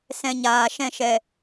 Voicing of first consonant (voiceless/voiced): voiceless